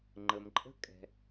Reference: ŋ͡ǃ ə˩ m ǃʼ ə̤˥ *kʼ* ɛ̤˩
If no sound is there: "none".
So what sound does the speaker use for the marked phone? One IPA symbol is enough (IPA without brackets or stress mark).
kʼ